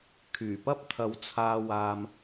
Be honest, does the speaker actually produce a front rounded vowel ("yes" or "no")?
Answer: yes